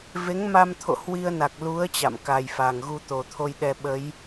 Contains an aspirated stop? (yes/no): yes